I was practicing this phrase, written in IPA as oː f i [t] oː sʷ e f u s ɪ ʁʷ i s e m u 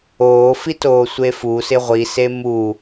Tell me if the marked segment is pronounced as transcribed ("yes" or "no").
yes